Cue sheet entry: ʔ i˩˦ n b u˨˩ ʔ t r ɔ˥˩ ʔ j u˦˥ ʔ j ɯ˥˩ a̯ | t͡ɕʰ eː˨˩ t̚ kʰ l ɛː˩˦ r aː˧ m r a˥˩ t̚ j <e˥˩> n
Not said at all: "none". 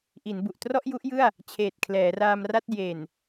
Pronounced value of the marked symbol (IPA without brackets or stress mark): e˨˩